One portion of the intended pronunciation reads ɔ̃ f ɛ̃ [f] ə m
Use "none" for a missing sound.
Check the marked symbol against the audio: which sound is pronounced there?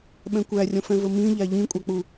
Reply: v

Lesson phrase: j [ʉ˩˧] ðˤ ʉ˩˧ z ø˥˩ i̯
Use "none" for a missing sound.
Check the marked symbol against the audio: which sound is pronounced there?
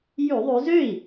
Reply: ʉ˧˩˧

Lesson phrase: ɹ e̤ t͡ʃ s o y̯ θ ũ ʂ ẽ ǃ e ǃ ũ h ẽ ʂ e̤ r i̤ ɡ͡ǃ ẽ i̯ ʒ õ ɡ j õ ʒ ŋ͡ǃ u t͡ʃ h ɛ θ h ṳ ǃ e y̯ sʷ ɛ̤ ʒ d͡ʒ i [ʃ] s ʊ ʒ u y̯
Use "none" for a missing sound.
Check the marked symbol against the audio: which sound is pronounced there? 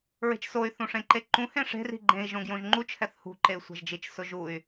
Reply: t͡ʃ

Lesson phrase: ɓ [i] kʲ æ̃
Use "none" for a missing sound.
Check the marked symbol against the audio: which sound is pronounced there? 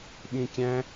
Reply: ĩ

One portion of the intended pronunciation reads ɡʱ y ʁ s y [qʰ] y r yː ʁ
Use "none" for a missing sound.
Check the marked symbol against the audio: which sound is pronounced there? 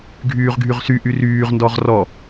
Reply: ʔ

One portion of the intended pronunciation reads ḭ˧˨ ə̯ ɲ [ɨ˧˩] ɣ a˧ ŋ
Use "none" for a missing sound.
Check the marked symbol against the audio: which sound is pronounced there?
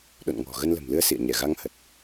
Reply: ɛ˧˩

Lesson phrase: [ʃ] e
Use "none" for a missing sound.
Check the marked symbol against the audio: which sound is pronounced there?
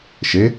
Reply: ʃ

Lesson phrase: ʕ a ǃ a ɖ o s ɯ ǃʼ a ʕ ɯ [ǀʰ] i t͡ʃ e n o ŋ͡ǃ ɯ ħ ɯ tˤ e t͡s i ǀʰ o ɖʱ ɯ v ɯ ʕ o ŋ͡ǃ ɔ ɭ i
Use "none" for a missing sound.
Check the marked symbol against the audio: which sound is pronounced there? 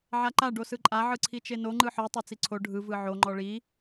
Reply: ǀʰ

